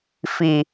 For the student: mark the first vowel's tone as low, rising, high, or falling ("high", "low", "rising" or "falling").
low